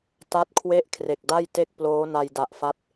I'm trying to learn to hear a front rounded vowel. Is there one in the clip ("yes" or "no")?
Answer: no